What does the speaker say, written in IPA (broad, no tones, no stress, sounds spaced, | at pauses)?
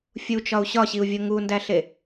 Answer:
fʲ u t͡ʃ ɒ u̯ ɕ ɒ ɕ i u̯ vʲ o ŋ u n d æ ɬ e